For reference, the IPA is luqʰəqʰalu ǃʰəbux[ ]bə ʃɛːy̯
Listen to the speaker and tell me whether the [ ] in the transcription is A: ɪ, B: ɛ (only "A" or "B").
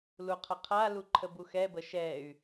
B